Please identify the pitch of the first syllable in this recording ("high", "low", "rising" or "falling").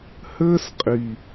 high